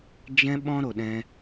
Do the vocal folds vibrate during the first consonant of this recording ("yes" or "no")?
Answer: yes